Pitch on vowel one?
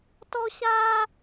high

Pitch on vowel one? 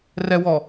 high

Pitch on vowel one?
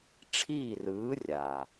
falling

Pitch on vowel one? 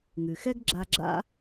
low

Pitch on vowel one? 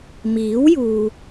rising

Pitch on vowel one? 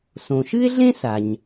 low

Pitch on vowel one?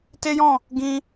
high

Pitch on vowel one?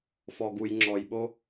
low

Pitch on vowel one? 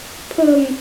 low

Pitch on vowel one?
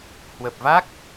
low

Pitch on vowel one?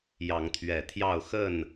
rising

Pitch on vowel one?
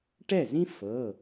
falling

